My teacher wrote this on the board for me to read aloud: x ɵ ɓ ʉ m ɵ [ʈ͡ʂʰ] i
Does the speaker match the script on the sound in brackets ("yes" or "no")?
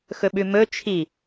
no